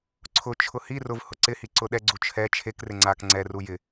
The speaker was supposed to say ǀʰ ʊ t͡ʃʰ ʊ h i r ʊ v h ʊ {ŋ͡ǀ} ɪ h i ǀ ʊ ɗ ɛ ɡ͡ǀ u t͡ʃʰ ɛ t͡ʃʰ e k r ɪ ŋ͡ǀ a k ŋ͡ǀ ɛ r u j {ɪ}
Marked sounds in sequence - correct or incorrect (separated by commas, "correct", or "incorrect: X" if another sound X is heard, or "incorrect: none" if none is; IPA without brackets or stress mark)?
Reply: incorrect: ǀ, correct